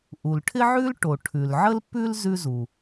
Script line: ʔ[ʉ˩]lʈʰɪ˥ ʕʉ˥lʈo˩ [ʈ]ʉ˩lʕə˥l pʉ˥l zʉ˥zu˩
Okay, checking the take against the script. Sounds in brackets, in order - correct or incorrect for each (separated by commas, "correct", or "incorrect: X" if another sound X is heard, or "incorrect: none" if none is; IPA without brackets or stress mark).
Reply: incorrect: u˩, incorrect: ʈʰ